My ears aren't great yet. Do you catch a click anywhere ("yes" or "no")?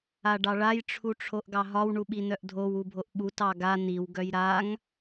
no